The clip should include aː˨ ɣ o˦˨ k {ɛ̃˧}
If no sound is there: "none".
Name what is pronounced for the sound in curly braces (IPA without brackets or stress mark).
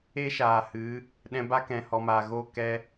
ɛ˧